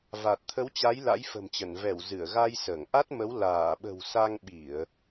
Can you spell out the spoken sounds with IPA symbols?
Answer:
va˨˩t̚t̪ʰə˨˦wt͡ɕa˨˦j la̰˧˥j fə̤˨˩mt͡ɕə˧˩n vɛ˧˩w zɨ˧˩ə̯ɣa˧jsəː˧˩ŋʔa˦˥t̚ mə˨˦wlaː˧˩ɓə̤˨˩w sa˧ŋɓi˧˩˨ə̯

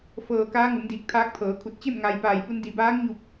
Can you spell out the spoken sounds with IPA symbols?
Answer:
fɤː˧˩kaː˧˥ ŋu˩˧mdiː˧˩k̚ t̪ʰaː˧˥k̚t̪ʰɤː˩˧kʰu˧˩t̚ t͡ɕe˥˨m ŋa˧j paː˧˩jpu˧n di˩baː˧˥ŋɲu˧˩p̚

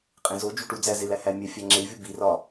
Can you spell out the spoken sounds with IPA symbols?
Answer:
qʼẽzo d͡ʒuʈu d͡zæzelæhæ mʲæfʲæŋ͡ǁevʲu birɒ

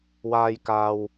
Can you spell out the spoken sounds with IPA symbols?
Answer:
waː˨j kaː˨w

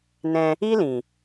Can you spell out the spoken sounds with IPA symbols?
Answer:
nɛ̃˧ | i˦lĩ˨

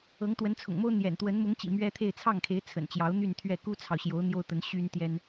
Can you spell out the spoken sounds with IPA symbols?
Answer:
ɤ˧˥ŋt̪wə˧˥nt͡sʰʊ̰˨˩ŋmo˥ʊ̯ n̪jɛ̰˨˩nt̪wə˧˥n mʊ˧˥ŋt͡ɕḭ˨˩ mɥɛ˥t̪ʰe˥˧ɪ̯ t͡sʰɑ˥˩ŋkʰe˧˥ɪ̯ t͡sʰə̰˨˩nt͡ɕjɑ˧˥ʊ̯n̪y˥˧n t̪ʰɥɛ˥˩ ku˥t͡sʰɑ˨ʊ̯ɕjo˧˥ʊ̯ n̪jo˥ʊ̯t̪ə˧˥n ɕy˥n t̪jɛ˥n

